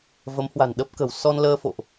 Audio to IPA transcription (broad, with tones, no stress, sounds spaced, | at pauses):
v ə˨˦ m h w a̤˨˩ n ɗ ə˦˥ p̚ k ə̤˨˩ w s ɔ˧ n l əː˧ f o̰˧˨ ʔ